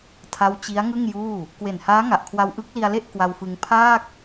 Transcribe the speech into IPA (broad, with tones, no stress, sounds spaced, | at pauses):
tʰ a˦˥ w t͡ɕ i˦˥ a̯ ŋ ɯ˥˩ ŋ j uː˥˩ | k w e˨˩ n h aː˦˥ ŋ a˨˩ ʔ kʰ w a˧ w ʔ ɯ˦˥ k̚ l i˧ a̯ l e˥˩ ʔ k w a˧ w f ɯ˧ ŋ pʰ aː˥˩ k̚